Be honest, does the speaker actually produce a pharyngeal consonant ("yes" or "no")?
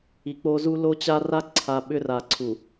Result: no